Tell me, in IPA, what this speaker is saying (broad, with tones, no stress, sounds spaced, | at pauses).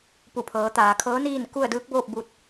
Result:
p u˧˩ pʰ ɤː˩˧ t̪ aː˩ kʰ ɤː˧˥ n iː˥˨ n k u˥˨ ə̯ d ɯː˧˥ k̚ b oː˥˨ p̚ b u˧ t̚